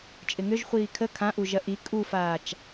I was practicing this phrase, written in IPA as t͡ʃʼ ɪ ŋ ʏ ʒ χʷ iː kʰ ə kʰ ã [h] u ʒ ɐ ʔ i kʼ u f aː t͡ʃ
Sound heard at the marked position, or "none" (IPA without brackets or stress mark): ʔ